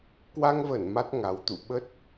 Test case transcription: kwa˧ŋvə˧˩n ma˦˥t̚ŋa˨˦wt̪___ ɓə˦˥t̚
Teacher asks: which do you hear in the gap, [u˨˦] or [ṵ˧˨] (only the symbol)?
ṵ˧˨